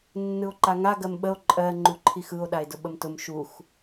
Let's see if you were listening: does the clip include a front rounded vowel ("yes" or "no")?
no